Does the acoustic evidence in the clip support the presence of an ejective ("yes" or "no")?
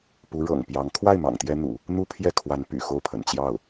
no